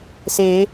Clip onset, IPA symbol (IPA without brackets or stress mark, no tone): s